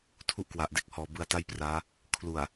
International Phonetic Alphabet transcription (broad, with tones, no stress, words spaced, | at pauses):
tʰu˦˥ʔkwa˨˩ʔ de˥˩k̚ hɔː˨˩ bɯ˧a̯ta˥˩jpraː˦˥ | kʰlu˨˩a̯